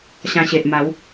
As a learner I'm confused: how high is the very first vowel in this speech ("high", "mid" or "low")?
low